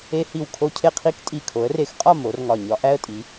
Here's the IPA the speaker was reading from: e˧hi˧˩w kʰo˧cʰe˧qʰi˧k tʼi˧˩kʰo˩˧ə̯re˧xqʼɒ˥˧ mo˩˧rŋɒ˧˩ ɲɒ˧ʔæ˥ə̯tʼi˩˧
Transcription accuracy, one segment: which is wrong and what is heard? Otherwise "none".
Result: none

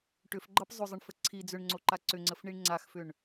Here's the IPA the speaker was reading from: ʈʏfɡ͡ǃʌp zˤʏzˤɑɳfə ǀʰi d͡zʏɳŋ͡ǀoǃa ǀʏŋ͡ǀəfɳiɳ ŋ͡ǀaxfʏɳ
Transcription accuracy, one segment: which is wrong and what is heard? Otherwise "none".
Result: ɑ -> ə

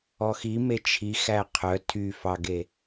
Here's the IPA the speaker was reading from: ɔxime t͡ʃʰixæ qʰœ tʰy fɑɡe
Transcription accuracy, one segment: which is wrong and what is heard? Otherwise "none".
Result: none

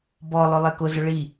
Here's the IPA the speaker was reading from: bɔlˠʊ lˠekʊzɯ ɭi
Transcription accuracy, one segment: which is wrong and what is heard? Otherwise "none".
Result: ɯ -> ʊ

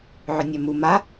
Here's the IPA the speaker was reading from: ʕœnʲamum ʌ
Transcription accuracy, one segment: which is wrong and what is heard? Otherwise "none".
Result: ʌ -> a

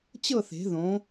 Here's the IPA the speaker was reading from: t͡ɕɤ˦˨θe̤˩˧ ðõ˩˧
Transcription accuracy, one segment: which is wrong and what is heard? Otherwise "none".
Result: none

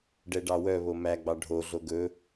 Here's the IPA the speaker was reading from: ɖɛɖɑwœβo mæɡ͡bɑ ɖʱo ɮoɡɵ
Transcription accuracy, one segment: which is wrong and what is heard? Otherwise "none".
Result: none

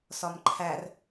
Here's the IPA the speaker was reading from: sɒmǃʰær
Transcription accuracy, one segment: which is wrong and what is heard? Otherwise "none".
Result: none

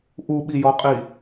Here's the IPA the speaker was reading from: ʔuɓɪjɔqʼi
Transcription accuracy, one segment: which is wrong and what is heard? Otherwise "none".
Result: ɪ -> i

